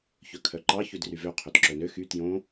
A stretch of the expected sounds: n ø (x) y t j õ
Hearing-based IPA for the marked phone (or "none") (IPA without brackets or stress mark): x